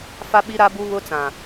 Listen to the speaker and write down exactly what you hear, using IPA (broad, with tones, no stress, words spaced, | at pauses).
fa˦ɓi˦ɾa˦ bu˦ βʊ˦t͡sã˨